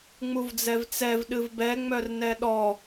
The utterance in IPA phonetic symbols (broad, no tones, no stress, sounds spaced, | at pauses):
ŋ͡m u v d͡z ɛ v t͡s ɛ v ɗ ɨ v b ɛ ŋ͡m œ r n ɛ ɗ ɔ